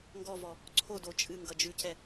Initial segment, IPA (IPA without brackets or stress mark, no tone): ŋ